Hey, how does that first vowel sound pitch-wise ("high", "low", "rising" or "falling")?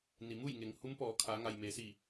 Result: low